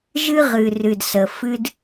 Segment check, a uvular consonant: present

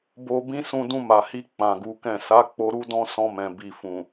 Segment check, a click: absent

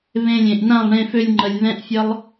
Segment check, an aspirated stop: absent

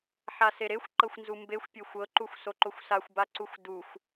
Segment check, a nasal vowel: absent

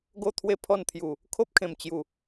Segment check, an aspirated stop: present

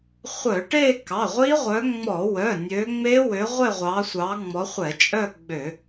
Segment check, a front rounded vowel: present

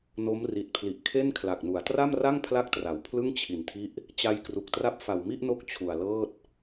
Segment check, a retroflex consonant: absent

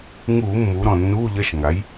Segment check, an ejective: absent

